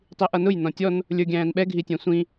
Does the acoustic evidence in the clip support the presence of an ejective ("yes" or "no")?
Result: no